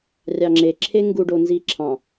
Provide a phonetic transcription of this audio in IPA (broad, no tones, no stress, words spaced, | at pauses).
rʲɑŋ͡ǁe ǁʰeŋɡu ɖonziːǁʰɑ̃